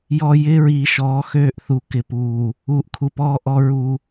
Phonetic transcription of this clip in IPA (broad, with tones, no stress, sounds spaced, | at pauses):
j ɔ˨ j ɪː˦ ɹ iː˨ ʃ ɔː˨˦ x øː˦ ʔ θ u˨ k ɪ˨ p uː˨ | uː˨ ʔ kʰ u˨ p ɔː˦ ʔ ɔ˦ ɹ u˦